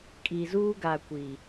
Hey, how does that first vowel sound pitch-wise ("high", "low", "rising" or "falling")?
low